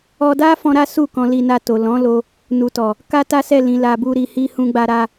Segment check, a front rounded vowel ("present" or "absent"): absent